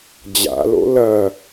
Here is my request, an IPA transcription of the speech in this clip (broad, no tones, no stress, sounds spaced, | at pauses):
d͡ʑ a̰ l o̰ l ɐ